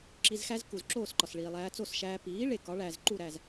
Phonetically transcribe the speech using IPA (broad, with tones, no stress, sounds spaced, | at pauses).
ǁ i˧ z x æ˥ z k u˩ z ǁ oː˥˩ s ǃ ɒ˩ s ɭ iː˩ lˠ æː˧ t͡s o˥˩ s ʃ æː˧ p iː˩˥ ɭ e˩ k ɒ˩˥ ɭ æː˩ z ǃ u˥˩ ɾ æː˥˩ z